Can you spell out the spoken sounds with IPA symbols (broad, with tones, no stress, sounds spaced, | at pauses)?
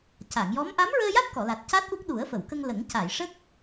c a˨˩˨ ŋ j ɔ˧˥ m ʔ a˧˥ m ɹ əː˧ j a˦˥ t̚ k ɔ˨˩˨ l a˨˩ t̚ c a˦˥ t̚ ʔ u˦˥ k̚ ɗ u˨˩˦ ə̯ f ə˨˩˨ w k ə˧ ŋ l ə˨˩˦ ŋ c a˨˩˨ j ʂ ə˦˥ k̚